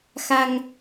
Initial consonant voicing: voiceless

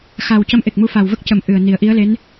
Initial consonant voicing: voiceless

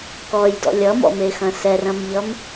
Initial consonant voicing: voiceless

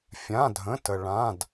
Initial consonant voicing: voiceless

